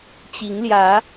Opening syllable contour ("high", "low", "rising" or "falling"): rising